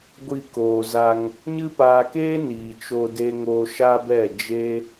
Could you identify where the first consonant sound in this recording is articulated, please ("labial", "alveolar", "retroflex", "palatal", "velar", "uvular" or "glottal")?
velar